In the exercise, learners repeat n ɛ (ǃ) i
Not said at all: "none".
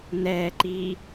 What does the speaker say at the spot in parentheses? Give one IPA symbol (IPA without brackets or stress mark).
ǃ